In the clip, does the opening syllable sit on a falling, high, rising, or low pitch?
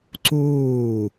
falling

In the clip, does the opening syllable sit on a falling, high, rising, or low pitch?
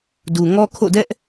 low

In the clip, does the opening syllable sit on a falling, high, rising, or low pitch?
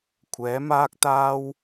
rising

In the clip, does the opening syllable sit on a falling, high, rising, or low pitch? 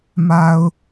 low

